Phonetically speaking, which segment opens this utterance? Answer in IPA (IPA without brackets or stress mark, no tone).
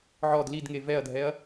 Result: ʕ